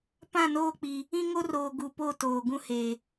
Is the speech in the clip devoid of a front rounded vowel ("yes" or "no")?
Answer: yes